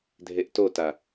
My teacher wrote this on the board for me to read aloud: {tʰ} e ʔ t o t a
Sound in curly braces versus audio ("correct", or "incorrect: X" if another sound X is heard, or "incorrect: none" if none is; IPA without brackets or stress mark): incorrect: dʱ